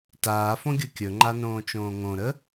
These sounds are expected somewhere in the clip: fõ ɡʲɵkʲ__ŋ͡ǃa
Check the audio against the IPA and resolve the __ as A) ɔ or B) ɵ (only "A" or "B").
B